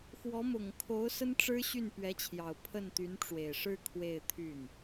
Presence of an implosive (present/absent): absent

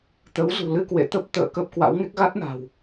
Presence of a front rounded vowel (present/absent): absent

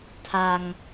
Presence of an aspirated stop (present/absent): present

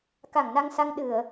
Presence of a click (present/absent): absent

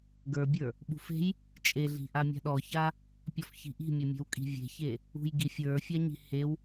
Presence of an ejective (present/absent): present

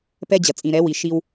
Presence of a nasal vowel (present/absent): present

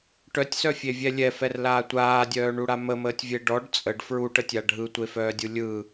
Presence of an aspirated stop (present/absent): absent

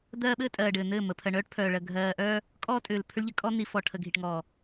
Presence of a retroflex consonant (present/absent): present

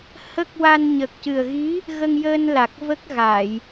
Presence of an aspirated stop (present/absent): absent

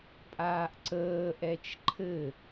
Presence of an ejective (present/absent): present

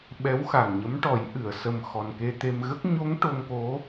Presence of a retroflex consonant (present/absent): present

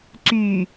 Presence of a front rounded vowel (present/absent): present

